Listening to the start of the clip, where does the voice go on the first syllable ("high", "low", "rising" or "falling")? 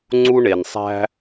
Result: high